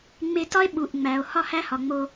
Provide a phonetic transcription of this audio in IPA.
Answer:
ŋ͡m e˧ t ɒ˥ e̯ ɓ u˩ ʔ ŋ͡m æ˩ o̯ h ɒ˥ h æ˥ h ɒ˩ ŋ͡m o˧

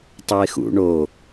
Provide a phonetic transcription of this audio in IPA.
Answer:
tˤ o ɪ̯ x ṵ ɳ o

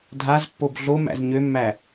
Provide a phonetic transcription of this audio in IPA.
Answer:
dʱ a z pː o b ɮ o m æ̰ z ɲ ø mː æ

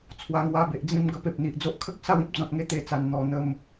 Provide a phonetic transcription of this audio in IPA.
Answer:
t͡sʰ w a˧ ŋ w a˧ b e˨ ʔ d͡z ĩ˧ m ɡ ə˧ p e˨ p̚ n̪ i˨ ʔ d͡z o˦ ʔ kʰ ə˦ k̚ s a˥˧ w ĩ˦ p̚ d͡z ɔ̃˨ t̚ ŋ e˧ t̪ e˧ t͡s a˨˩ n n̪ ɔ˨˩ n̪ ə˨˩ m

